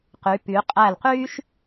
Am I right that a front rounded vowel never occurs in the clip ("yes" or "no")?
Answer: no